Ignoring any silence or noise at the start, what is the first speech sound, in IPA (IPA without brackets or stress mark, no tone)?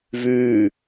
v